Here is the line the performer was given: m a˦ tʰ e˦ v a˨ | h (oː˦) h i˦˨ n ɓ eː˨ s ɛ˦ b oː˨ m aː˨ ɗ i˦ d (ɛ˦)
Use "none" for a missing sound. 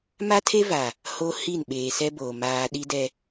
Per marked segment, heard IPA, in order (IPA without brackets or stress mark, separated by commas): o˦, ɛ˦